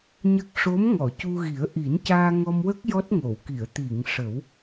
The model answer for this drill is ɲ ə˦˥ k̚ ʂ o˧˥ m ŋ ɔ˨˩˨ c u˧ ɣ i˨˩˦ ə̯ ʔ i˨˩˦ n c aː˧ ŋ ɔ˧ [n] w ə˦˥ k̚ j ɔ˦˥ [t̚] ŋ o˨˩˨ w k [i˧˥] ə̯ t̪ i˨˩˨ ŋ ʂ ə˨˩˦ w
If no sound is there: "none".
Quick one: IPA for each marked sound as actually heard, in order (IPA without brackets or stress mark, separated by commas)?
m, t̚, i˨˩˨